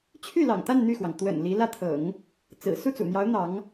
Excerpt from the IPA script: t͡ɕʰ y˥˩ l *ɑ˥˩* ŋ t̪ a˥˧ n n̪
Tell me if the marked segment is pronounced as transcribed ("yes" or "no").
no